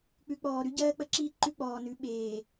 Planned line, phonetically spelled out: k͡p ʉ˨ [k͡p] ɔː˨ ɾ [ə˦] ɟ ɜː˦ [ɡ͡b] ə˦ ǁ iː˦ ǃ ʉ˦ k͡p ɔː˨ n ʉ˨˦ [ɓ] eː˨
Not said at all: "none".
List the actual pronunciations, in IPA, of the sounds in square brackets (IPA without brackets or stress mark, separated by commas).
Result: k͡p, ʉ˦, k͡p, ɓ